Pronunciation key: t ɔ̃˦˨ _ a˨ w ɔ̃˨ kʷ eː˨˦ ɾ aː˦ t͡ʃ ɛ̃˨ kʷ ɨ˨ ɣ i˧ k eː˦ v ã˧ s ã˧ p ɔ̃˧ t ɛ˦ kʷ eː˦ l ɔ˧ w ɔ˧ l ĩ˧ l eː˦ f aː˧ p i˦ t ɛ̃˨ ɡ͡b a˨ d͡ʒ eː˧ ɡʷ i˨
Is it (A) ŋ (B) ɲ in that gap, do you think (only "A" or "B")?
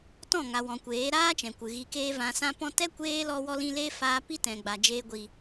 A